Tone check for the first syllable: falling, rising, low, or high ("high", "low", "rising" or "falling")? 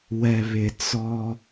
low